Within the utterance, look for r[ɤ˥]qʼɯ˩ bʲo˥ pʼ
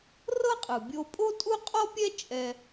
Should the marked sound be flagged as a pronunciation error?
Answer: no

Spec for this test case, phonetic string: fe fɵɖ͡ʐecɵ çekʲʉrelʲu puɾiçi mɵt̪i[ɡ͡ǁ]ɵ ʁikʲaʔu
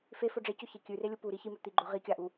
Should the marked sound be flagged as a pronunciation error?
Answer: yes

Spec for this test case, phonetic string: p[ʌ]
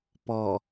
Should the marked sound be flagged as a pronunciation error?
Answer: yes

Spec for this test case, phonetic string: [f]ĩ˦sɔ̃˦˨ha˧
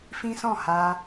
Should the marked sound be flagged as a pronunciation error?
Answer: no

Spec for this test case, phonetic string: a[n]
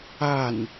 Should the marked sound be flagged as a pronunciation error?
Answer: no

